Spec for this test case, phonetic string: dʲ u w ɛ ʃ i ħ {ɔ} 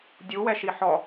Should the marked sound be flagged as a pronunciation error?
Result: no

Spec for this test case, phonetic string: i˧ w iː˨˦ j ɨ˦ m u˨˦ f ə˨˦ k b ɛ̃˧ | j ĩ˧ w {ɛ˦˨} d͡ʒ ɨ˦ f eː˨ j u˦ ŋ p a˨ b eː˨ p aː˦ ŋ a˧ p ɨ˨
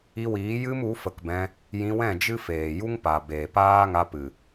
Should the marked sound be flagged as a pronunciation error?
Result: yes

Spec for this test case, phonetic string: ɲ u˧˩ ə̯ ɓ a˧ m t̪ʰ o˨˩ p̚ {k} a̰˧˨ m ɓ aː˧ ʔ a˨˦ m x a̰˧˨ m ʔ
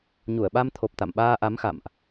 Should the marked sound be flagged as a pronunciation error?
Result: yes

